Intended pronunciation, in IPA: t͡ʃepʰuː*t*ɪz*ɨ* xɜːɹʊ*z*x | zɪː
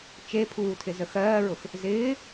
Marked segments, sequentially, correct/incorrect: incorrect: tʰ, incorrect: ə, incorrect: none

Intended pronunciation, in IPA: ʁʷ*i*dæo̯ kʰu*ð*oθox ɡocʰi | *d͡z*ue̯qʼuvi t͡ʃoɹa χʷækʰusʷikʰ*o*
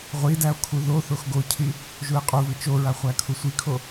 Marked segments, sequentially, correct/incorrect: correct, correct, incorrect: ʒ, correct

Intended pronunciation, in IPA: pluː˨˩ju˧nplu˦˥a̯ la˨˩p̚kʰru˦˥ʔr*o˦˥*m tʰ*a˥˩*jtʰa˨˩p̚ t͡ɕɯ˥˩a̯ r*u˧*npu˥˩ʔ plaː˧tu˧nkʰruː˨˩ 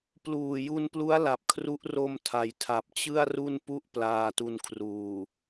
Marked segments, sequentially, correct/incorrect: incorrect: o˧, incorrect: a˩˦, incorrect: u˥˩

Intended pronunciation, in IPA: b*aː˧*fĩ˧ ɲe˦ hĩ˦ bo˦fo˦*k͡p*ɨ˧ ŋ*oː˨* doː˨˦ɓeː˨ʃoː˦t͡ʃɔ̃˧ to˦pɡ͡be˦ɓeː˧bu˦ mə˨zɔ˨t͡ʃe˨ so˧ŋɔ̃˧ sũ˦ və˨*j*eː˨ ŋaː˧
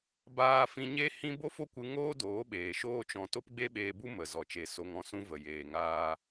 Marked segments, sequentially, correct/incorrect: correct, incorrect: kʷ, incorrect: oː˦, correct

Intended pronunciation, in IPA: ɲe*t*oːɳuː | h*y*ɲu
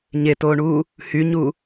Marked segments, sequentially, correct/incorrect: correct, correct

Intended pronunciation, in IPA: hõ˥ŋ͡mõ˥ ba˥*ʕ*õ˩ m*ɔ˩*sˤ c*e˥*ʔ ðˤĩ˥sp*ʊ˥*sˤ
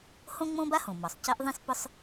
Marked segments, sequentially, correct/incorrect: incorrect: h, correct, correct, correct

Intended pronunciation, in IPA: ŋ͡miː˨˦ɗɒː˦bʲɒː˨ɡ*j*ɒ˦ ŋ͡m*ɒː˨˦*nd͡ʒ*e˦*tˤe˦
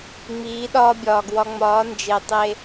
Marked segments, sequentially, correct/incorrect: incorrect: w, correct, incorrect: e˨

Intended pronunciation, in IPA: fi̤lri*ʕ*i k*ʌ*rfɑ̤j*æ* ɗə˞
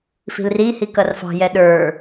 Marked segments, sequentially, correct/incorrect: incorrect: h, correct, incorrect: ɛ

